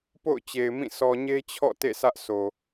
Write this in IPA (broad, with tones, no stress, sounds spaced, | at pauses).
p o̰˦˨ ʊ̯ t͡ɕ e˨ ɪ̯ m ĩ˦˨ sʰ ɔ˨ ɲ e˦ t͡ɕʰ ɔ̰˦˨ t ḛ˦˨ sʰ ä˦ ʔ s o˨